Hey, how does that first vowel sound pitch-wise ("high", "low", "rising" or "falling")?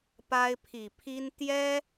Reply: high